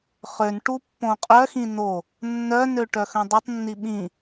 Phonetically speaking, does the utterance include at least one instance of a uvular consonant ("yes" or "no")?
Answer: yes